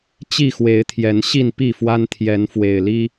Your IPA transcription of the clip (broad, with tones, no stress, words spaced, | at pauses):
t͡ɕi˥˨xwe˨˦ɪ̯t̪ʰjɛ˨˦n ɕi˥˨npi˥˨fwa˦n t̪ʰjɛ˨˦nfwe˨˩ɪ̯li˦